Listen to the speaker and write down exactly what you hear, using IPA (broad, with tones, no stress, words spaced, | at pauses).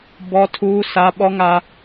bɔ˦tʰuː˦ sa˦ ɓɔ˦ŋa˦